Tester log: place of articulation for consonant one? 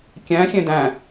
velar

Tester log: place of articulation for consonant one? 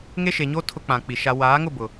velar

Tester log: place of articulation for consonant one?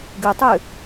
velar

